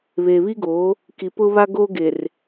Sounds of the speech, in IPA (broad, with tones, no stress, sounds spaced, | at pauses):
β eː˨ β i˦ ɡ oː˨˦ | k i˨ p ʊ˦ β a˦ ɡ oː˦ ɡ e˨ r